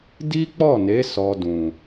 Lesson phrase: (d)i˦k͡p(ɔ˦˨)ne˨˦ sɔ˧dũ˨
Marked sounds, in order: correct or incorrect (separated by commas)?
correct, correct